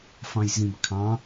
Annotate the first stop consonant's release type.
plain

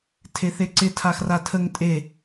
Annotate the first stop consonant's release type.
aspirated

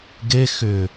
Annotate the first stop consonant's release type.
plain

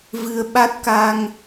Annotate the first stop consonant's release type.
implosive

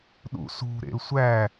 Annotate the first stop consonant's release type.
implosive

